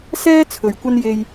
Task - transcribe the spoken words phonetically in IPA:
sɛː˥ t͡sʰɵ˨ɥkʷɐ˥n je˥j

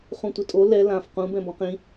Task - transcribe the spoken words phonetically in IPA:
χũtʷɪtʼo lɛ lãf qũ bɛ̃bɔ̃qĩ

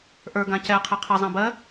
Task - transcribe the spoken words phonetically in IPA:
ʔə˞ ɡãcɛ qʰeqʰɘ zˤãbɜ

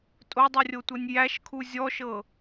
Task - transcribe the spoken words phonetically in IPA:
tʼodˤurʲotʷɤnʲ jæʃkʰu zʲɔʃɤ

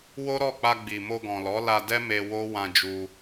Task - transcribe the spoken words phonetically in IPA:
wo˦ɾɔ˦˨k͡pa˧ ɡ͡bi˨mo˧ ɡɔ̃˨lɔ˨˦la˧dɛ˦ me˧wo˦ wã˧d͡ʒu˧

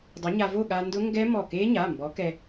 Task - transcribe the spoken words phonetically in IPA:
dˤa˨˥ɲa˧vo˥˨ ɠa˧ndʊ˦˥ŋɡɛ˦˥ mɔ˧˩ke˦˥ɲa˩˧˩ mbɔ˨˥kɛ˧

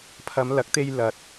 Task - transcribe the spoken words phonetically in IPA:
pʰɐ˨˧mlɐ˨˥k̚t̪e˧j lɐ˨t̚

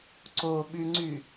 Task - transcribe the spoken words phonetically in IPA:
ǀoɓyŋ͡ǀy

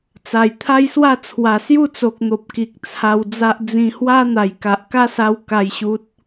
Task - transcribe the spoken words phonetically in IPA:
t͡sa˨˩jt̪ʰa˦jswa˥˧ t͡sʰwa˨˩sju˥˧t͡so˨k̚n̪o˨p̚ ki˨k̚t͡sʰa˧wd͡za˦ʔ d͡zĩ˧hwa˦ n̪a˨˩jka˨ʔka˦sa˧w ka˥˧jɕu˦t̚

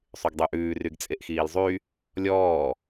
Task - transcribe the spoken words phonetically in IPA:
sˤyɡdˤʉʔʉː ryɡt͡sʼeʔxiːlzˤy | lʲɔː

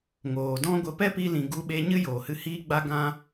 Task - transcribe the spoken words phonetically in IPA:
ŋoː˨dɔ̃˦ɡʷə˧ pɛ˦pi˧lĩ˨ ɡu˧ɓe˧ ɲɨ˦joː˨hɨ˧ hiː˦ɡ͡ba˦ ɡã˦

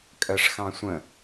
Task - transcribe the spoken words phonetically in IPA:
kʼɜʂxɑ̃sʷə̃

